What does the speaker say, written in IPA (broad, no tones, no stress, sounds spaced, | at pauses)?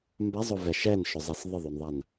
m b a zˤ ʊ v ɛ ʃ ɛ n ʃ ʊ zˤ ɛ s ðˤ ə ðˤ o n ðˤ a n